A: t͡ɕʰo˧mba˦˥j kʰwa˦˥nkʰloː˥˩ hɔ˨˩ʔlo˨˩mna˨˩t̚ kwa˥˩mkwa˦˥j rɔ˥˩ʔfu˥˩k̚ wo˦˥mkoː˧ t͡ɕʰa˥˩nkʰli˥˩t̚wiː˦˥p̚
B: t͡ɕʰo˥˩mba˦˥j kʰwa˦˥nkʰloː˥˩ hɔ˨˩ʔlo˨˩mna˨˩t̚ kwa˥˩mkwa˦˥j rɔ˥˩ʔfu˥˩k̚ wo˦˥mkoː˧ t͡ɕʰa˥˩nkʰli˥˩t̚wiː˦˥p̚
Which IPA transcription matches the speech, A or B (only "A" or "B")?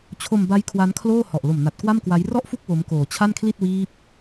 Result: A